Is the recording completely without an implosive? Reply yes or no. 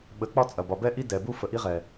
no